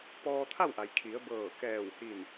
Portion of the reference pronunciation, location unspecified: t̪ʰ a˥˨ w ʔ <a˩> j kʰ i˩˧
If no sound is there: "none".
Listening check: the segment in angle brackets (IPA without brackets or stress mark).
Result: a˩